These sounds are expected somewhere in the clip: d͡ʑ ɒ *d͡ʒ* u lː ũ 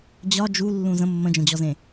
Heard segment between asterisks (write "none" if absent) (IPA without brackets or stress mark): d͡ʒ